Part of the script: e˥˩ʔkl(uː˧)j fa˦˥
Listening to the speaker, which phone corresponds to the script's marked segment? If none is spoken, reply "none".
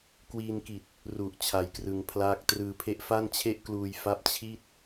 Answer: uː˧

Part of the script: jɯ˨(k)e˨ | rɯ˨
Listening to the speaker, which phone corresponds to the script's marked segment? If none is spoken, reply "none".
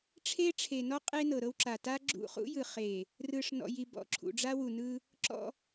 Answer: χ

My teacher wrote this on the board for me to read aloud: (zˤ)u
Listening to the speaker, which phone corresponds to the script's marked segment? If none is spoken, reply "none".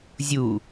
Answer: zʲ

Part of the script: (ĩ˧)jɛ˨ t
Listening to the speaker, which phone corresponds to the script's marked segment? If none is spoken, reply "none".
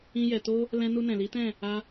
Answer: ĩ˧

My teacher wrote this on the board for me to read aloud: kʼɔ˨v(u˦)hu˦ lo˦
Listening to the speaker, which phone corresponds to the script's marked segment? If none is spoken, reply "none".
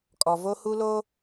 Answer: o˦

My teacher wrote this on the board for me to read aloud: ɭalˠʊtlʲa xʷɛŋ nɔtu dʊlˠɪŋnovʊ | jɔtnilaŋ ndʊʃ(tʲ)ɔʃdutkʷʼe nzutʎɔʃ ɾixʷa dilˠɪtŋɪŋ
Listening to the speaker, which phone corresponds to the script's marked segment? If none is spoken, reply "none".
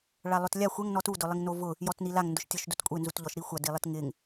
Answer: tʲ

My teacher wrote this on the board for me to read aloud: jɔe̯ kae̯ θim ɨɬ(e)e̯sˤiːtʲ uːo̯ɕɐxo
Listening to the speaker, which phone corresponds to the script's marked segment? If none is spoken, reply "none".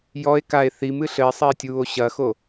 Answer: ɘ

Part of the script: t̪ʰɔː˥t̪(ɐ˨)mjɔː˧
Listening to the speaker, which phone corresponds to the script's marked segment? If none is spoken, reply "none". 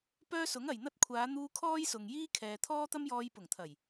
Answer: ɐ˥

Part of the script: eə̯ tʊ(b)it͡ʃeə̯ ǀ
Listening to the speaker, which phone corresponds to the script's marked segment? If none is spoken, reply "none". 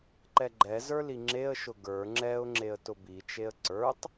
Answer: b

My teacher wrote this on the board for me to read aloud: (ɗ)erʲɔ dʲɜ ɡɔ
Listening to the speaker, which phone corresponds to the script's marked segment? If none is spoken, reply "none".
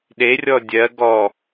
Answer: ɗ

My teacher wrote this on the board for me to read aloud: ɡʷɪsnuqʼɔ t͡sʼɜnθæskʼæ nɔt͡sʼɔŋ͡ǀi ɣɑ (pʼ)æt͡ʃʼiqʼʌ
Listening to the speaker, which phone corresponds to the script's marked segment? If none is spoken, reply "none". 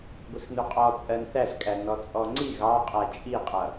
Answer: qʼ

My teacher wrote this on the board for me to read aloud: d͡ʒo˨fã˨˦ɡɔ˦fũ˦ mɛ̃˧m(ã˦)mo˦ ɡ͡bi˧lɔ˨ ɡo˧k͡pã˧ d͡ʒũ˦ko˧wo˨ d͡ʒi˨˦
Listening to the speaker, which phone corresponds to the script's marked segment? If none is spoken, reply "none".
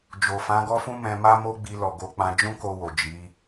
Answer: a˦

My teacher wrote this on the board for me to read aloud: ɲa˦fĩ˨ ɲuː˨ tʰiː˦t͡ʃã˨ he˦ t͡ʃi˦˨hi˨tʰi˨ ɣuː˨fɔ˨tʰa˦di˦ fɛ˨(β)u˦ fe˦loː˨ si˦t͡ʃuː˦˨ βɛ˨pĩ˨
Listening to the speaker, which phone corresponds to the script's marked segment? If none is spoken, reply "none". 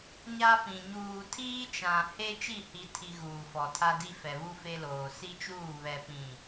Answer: β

